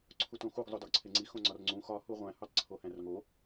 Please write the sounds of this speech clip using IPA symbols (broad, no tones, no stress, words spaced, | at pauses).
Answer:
ǀʰutõxuɡ zˤodɒɡǀʰeŋ͡ǀi xõŋ͡ǀɒrŋ͡ǀũ xɒ huʁʷæ̃ hutˤǀʰohæ̃rŋo